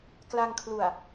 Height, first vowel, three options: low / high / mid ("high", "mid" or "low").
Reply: low